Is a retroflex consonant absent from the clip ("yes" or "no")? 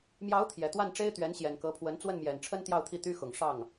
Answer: no